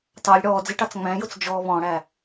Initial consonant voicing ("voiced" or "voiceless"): voiceless